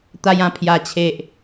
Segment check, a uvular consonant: absent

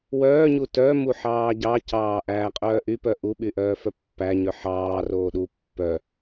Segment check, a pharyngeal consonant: present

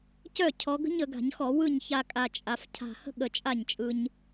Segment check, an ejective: present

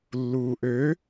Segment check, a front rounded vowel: present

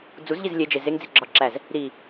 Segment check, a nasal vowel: absent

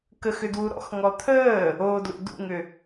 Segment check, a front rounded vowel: present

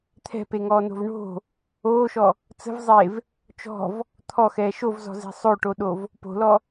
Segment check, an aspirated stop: present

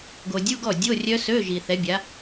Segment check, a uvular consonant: absent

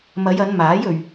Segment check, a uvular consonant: absent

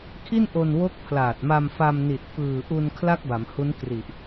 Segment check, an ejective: absent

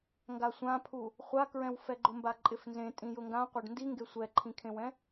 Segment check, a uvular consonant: present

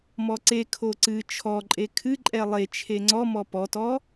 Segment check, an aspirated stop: present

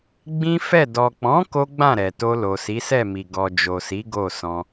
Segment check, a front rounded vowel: absent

